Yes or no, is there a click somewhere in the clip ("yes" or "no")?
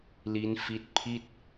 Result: no